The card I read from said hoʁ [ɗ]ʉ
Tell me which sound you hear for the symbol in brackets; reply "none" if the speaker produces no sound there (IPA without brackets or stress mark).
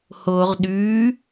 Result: ɗ